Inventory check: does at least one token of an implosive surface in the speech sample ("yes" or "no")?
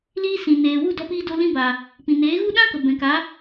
yes